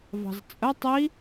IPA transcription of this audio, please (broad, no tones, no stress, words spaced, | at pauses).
vɑ̤zt͡sʼə tˤi